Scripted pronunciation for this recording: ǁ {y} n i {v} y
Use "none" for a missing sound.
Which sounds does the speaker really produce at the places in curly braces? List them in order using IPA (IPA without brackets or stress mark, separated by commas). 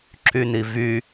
y, v